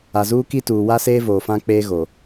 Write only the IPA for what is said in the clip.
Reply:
a˨ z uː˦ k i˦ t uː˨ w a˦ s eː˦ v oː˨ f ã˦ k͡p eː˦ ɣ o˨

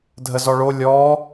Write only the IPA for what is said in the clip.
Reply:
dʱ ə z ɔ ɭ o lʲ ɔ

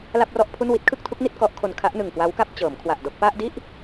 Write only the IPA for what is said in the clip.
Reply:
l a˥˩ p̚ r ɔ˥˩ ʔ pʰ u˥˩ n w i˦˥ t̚ kʰ ɯ˥˩ k̚ tʰ u˦˥ k̚ n i˥˩ t̚ k ɔ˦˥ ʔ kʰ o˧ n kʰ a˦˥ ʔ n ɯ˨˩ ŋ k w a˦˥ w k a˥˩ p̚ t͡ɕ ɤː˩˦ m kʰ w a˨˩ ʔ d o˥˩ k̚ p a˥˩ ʔ d i˥˩ ʔ

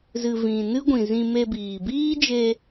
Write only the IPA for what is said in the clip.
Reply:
z ɨ˨ v ĩ˨ n ɨ˦ ɡʷ ĩ˨ z ĩ˧ m e˧ b iː˨ b iː˦ d͡ʒ e˧

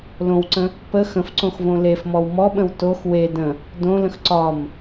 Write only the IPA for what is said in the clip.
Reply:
l õ w ǀ ə̃ | p ə x ə̃ f ǀ õ x v õ l e f m ɔ w m ɔ ɓ ə̃ w t o x w e d ə̃ | d õ l ə̃ x ǀ ɒ m

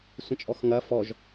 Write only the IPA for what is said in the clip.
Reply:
sʷ ə̃ t͡ʃʼ ɔ x ŋ ɐ f ɔ ʒ

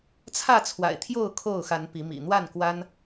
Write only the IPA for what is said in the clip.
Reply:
t͡sʰ ä˥˨ t͡sʰ w a̰˨˩ ɪ̯ t̪ʰ j o˥˨ ʊ̯ kʰ o˥˨ ʊ̯ x a˨˦ n p i˨˦ m ḭ˨˩ n̪ w a˥˨ n k w a˦ n

